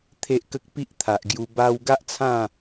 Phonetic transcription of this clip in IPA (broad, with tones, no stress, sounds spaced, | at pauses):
t̪ʰ e˨ ʔ k ə˨ k̚ p i˦ ʔ t̪ʰ a˨ ʔ ɡ j u˧ b a˧ w ɡ a˦ ʔ t͡sʰ ã˥˧